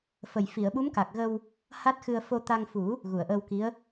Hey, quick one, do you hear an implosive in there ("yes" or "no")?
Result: yes